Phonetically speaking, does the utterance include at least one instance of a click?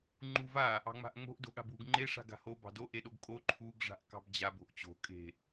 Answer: yes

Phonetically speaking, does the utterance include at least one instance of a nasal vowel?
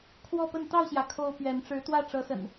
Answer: no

